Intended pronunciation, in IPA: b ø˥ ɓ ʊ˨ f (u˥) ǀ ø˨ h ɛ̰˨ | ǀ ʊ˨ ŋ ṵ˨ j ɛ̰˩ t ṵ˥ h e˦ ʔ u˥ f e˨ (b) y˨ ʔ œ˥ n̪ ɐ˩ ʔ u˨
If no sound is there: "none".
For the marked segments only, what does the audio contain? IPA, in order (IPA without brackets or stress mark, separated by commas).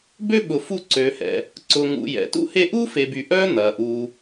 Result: u˦, b